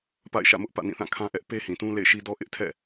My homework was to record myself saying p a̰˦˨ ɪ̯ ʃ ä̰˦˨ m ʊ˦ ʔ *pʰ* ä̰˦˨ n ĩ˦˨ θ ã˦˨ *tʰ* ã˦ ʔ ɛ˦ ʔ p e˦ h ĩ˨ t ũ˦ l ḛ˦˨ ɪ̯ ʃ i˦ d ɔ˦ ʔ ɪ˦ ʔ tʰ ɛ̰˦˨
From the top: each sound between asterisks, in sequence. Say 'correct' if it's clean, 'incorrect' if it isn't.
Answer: incorrect: p, incorrect: kʰ

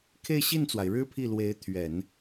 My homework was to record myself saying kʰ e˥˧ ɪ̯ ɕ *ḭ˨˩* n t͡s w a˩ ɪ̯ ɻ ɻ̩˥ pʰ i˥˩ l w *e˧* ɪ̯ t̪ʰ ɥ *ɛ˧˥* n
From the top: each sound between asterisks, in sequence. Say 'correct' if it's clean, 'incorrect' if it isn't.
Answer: incorrect: i˥˩, incorrect: e˧˥, incorrect: ɛ˨˩˦

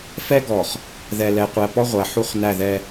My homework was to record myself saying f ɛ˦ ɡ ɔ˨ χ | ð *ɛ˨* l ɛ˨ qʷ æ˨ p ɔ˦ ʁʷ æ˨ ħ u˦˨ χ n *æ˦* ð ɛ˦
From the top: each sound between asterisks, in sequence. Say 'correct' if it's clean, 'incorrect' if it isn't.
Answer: correct, incorrect: æ˦˨

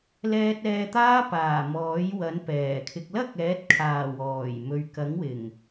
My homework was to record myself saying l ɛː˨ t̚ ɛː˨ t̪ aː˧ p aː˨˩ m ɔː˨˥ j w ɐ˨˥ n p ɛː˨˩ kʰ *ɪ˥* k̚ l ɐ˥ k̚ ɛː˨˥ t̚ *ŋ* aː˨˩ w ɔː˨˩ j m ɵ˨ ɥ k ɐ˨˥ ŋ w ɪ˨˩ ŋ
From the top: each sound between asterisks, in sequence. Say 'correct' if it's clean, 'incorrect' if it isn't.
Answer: incorrect: ɪ˧, incorrect: kʰ

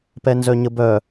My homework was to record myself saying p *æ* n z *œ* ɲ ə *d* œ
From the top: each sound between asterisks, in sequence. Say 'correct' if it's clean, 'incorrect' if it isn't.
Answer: incorrect: ɛ, correct, incorrect: b

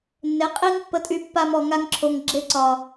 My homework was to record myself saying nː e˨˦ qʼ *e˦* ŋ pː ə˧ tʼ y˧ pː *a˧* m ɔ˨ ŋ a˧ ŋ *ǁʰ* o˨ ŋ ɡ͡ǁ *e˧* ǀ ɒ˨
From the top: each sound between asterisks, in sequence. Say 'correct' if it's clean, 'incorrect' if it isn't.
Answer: incorrect: i˦, correct, correct, correct

